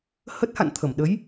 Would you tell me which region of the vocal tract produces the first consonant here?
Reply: throat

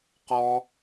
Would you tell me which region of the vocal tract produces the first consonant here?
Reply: uvula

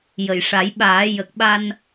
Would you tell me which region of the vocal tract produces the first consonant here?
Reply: palate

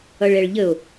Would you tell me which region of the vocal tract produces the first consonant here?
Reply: retroflex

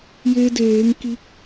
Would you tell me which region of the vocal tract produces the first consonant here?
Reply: palate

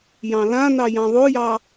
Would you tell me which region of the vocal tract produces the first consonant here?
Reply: palate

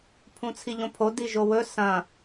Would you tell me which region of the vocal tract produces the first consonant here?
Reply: lips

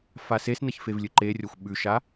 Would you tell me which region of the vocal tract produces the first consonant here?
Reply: lips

